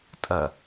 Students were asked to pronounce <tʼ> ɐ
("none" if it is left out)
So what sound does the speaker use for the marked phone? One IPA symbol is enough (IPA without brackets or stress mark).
tʼ